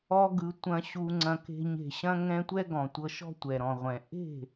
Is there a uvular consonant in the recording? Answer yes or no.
yes